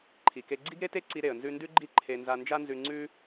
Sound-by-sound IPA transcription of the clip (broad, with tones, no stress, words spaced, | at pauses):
ǃʰi˩ke˧ ɡ͡ǀi˥ɡɾe˥te˥ǀi˧ ɾe˩ə̯nzʉ˧ndʉ˥ɡ͡ǃi˥ ǃʰe˧ nza˧nd͡ʒa˥nzʉ˧ ŋ͡ǀʉ˥